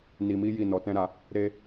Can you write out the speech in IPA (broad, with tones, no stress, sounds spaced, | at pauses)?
n i˧ m i˦ j i˦˨ n ɔ˧ t ɛ̃˦ ɾ a˧ | ɾ e˦